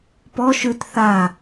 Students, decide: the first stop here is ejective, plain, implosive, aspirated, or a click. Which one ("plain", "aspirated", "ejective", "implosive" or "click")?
plain